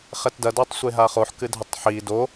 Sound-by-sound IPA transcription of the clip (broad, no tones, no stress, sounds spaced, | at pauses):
χ ɛ t d ɐ d ɔ tˤ sʷ e ɦ a χ o ħ k ɨ dʱ ɐ tˤ ħ i d o